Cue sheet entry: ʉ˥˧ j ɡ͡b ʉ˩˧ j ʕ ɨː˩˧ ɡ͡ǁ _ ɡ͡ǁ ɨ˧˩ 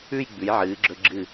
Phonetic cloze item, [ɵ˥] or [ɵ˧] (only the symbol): ɵ˧